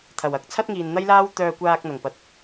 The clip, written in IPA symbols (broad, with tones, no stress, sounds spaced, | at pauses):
t̪ʰ ɐ˨˩ w ɐ˨˥ k̚ t͡sʰ ɐ˥ t̚ ŋ iː˨ n n̪ ɐ˥ j l aː˥ w t̪ œː˧ kʷ aː˧ k̚ n̪ ɐ˨˩ ŋ p ɐ˨ t̚